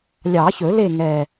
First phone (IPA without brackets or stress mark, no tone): lʲ